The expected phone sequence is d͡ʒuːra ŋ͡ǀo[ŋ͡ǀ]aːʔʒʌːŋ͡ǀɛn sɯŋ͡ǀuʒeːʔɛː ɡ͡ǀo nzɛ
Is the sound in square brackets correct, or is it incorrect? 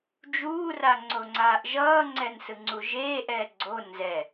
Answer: correct